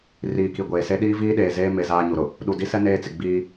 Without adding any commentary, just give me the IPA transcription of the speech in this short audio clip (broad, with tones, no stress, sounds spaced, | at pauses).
r iː˨ k i˨ ɡʷ eː˨ s e˦ ɗ iː˦ v iː˦ ɗ eː˨ z eː˦ m e˨ z aː˦ ɲ u˨ ɾ ʊ˨ | ɗ u˨ d i˦ s ɛ˦ n eː˦ t͡s ɪ˨ ɡ͡b iː˦